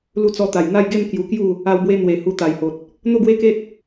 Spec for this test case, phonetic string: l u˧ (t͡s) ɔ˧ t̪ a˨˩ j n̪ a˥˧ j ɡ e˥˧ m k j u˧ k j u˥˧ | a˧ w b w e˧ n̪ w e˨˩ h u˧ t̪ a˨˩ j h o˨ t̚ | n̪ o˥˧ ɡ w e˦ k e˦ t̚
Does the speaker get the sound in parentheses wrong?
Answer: no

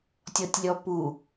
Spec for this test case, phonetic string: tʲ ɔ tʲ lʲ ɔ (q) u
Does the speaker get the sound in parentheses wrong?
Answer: yes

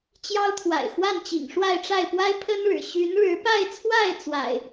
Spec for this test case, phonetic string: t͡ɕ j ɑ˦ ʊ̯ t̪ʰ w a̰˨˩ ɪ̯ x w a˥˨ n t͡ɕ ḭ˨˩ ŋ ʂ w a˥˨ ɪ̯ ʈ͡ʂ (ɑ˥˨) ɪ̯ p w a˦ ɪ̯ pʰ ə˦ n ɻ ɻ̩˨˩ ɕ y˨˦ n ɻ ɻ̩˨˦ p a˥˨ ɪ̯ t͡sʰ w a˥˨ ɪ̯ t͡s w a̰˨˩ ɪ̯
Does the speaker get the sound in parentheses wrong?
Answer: yes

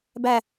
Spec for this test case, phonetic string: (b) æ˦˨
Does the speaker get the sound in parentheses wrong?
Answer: no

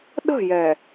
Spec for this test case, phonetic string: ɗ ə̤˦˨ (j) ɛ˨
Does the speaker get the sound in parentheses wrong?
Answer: no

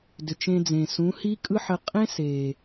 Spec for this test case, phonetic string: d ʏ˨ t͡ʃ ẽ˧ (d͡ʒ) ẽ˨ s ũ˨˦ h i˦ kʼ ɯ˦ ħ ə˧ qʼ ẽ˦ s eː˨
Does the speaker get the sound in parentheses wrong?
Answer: yes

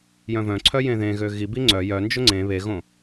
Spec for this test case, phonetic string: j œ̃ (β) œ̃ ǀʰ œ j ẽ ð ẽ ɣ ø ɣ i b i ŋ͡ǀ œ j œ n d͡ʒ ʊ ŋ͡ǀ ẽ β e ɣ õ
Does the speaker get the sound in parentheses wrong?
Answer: yes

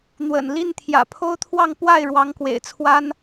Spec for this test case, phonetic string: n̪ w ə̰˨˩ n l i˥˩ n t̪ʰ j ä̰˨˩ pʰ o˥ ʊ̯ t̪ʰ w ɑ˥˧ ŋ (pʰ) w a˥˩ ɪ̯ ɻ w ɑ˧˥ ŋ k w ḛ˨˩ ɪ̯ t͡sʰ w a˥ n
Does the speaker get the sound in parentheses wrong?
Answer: yes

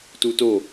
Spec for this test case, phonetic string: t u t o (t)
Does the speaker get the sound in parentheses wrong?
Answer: yes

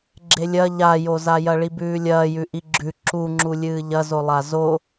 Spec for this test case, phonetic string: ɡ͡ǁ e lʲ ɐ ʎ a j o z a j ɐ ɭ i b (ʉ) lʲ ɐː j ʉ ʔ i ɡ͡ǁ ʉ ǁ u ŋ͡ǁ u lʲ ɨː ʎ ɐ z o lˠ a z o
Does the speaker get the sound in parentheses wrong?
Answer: yes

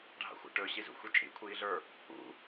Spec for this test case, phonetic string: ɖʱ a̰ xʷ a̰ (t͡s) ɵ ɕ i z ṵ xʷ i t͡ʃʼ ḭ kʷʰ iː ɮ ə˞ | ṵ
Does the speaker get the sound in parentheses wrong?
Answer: yes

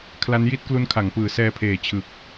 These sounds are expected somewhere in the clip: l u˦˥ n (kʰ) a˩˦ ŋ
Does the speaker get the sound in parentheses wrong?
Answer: no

